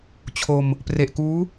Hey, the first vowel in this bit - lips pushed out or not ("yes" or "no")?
yes